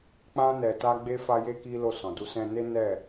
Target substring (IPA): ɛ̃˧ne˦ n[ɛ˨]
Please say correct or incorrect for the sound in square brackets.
incorrect